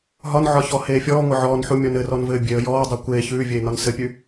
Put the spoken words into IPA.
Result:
ɦɒnʕɒçɔ heːfʲɔː ŋʷɘʕɔːnħu mʲɔnɘrɔnvɘː bʲeə̯ jɔːdˤɜ kʷeː çʉːvʲeː nɒnsɘpʲʉ

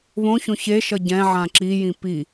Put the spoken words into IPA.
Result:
βõçõ çeʃʌ ɟɛ̃ ʕãǁijĩ pi

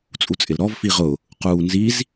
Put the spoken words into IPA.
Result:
t͡sʼut͡sʼɪlɾɔv fiʁʊ | quːnziz

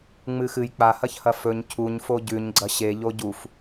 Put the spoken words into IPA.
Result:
ŋ͡mɨxɨj k͡pahɐçhɐ fɵɲ cʰuɲfo ɟʉɲ ɡ͡ǀɐɕeʎo ɟuf

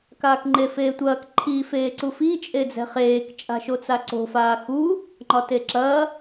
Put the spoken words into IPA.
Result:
kaːkŋ͡ǃefeːtʷɐːk ǃʰi feːǀufi t͡ʃʼed͡zɛ̤χeːk t͡ʃʼa̤ʃot͡saǀo̤ faːxu | ŋ͡ǃɒteǁɐː

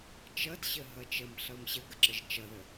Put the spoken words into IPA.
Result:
t͡ʃʌdɕəɦʌ t͡ʃəmɬʌm ɕəɡəǁəʒ t͡ʃʌðə

